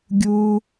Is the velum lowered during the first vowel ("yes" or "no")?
no